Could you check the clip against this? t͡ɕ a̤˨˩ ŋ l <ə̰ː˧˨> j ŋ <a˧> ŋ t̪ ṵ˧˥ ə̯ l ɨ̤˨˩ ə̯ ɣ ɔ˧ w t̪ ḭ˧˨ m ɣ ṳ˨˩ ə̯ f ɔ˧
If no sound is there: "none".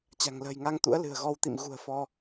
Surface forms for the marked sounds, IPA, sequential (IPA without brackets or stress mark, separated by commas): ə̤ː˨˩, a˧